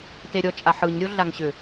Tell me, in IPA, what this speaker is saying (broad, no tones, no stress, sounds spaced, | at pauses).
t e ɾʲ ɔ t͡ʃʼ a ħ ɯ ɲ ɾʲ o ɮ a ŋ ɕ ʏ